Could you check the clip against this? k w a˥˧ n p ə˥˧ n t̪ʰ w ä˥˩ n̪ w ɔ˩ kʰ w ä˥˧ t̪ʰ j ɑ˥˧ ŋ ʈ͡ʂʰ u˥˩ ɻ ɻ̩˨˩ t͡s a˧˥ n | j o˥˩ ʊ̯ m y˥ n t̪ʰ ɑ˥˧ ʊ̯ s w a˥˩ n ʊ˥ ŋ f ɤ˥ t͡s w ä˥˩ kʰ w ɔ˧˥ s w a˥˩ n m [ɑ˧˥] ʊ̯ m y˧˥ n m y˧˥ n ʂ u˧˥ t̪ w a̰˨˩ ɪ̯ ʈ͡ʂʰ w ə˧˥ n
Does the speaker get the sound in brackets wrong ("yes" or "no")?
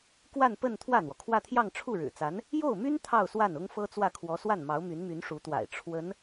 no